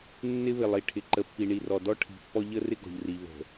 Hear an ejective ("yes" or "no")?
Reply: no